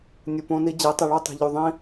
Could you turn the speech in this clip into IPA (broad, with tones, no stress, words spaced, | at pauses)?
nʲu˨põ˧ni˧ d͡ʑe˨˦tˤi˨ ɭo˦tˤe̤˨ʎu˨ ðˤĩ˦